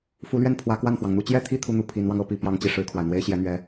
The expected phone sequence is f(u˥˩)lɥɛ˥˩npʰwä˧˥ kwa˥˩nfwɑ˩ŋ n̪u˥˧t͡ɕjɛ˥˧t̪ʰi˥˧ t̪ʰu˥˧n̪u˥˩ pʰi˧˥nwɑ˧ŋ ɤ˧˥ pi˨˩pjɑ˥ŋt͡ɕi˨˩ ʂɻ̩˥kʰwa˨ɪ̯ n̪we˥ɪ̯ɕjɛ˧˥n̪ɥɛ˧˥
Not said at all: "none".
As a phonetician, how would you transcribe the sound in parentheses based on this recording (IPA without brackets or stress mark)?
u˧˥